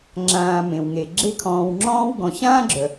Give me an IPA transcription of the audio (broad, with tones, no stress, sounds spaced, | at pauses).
ŋ͡ǁ ãː˨ m ẽ˩ w ŋ e˩ ɡ͡ǁ e˦ kʰ ɔ̃ː˨ w ŋ͡ǁ ɔ̃ː˥ w ɡ ɔ̃˨ ɕ ãː˥ ɡ͡ǁ œ˩